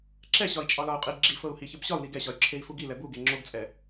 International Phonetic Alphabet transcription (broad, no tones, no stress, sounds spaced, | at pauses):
ǁ ɛ ɕ ɒ i̯ t͡ʃʼ ɒ l ɒ u̯ qʼ i ɡ͡ǁ i f ɤ u̯ h i ç ə b ɕ ɒ u̯ l i ɡ ɛ ɕ ɒ y̯ ǁʰ e i̯ f u ɡ i l ɛ b u ɡ e ŋ͡ǁ o ɡ t͡sʼ ɛ